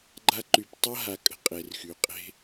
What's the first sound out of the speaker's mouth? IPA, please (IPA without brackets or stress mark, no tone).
ɡ͡ǃ